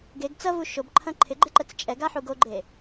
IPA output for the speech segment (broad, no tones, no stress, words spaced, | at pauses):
ɡeɡ t͡sɐvu ʃobǃʰɐ̃ ǃʰɪɡ͡ǃɪ ǃət͡st͡ʃʼɛɡa ħuɡoɡ͡ǃe